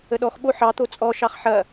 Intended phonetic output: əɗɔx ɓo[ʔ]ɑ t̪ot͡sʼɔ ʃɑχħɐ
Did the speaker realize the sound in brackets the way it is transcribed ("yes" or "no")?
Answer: no